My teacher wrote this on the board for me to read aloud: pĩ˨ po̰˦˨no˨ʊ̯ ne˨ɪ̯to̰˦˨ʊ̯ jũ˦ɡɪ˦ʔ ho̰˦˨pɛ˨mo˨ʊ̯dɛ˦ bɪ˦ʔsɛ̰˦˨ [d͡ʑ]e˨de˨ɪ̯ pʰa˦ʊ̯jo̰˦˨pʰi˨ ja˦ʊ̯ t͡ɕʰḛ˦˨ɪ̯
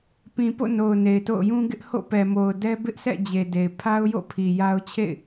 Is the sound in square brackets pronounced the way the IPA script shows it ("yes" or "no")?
yes